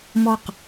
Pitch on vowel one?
falling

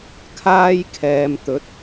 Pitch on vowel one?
high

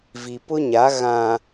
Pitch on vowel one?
low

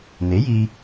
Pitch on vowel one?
rising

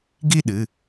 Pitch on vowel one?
falling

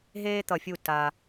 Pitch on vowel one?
high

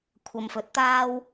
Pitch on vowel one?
low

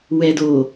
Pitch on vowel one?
low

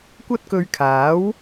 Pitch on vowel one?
high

